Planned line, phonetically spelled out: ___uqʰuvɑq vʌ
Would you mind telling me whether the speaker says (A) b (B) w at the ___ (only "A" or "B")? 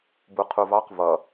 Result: A